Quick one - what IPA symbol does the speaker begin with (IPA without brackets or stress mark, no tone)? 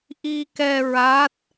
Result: ʔ